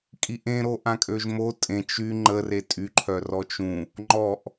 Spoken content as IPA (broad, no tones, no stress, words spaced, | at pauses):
kʼiʔẽɾo ʔãkʼøʒmo tʼẽ t͡ʃy ŋ͡ǃəre tʼyǃʰœ rɔt͡ʃũ | ŋ͡ǃɔʔ